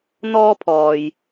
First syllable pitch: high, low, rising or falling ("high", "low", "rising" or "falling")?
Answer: high